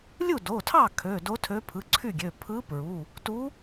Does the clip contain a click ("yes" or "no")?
yes